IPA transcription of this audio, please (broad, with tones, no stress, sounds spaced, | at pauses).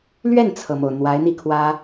l ɥ ɛ˥˩ n t͡sʰ ɤ˩ m o˩ ʊ̯ n̪ w a˧˥ ɪ̯ n̪ i˥˩ kʰ w ä˥